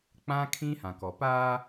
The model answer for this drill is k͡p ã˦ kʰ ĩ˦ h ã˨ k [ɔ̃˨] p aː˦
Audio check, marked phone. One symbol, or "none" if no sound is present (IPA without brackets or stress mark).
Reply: ɔ˨